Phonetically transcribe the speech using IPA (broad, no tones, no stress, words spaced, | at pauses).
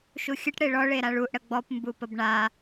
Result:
ʃuxʲəʈ ɽeɭɔ ɭeɾaɭuʔ ɽəɡ͡bɔp mbupəbɳa